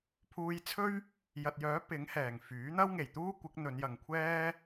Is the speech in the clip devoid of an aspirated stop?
no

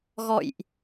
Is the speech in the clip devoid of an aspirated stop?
yes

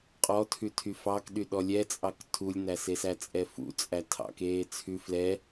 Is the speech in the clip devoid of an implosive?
no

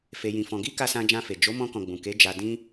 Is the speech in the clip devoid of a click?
yes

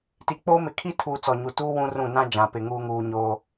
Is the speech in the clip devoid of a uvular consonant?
yes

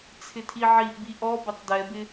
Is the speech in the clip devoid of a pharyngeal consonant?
no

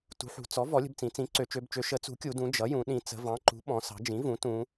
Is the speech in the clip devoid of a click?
no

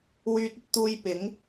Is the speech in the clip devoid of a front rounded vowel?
no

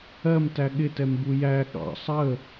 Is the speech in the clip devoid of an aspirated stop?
yes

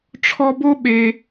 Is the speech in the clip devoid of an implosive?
no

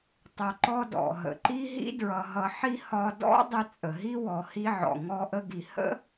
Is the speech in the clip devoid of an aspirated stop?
yes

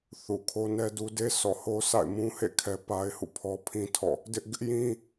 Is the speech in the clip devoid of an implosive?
yes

